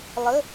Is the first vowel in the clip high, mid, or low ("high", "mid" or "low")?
mid